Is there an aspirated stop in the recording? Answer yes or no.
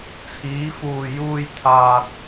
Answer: yes